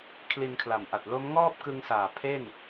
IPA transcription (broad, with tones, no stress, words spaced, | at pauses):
kʰli˧nkʰla˨˩mʔa˨˩t̚ lo˦˥mŋɔː˥˩p̚kɯ˧ŋsaː˨˩ pʰe˥˩n